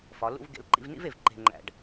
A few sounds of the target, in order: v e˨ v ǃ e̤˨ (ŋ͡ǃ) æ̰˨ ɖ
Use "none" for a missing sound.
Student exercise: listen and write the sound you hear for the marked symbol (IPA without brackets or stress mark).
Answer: ŋ͡ǃ